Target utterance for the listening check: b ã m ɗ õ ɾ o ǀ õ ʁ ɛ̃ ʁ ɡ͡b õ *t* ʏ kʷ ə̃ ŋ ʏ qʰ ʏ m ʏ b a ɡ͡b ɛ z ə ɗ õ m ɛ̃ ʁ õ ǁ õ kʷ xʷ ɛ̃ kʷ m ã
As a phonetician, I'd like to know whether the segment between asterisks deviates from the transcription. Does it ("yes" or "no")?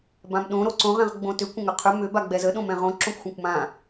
no